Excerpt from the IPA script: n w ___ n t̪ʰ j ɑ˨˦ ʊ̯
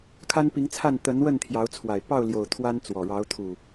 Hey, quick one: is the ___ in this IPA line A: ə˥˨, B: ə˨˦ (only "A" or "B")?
A